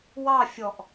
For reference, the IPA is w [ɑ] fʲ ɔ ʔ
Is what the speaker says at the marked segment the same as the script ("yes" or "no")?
yes